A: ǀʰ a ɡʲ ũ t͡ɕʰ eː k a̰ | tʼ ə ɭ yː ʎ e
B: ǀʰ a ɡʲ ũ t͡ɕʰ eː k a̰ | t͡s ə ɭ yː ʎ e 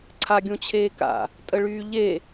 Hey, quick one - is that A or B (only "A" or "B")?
A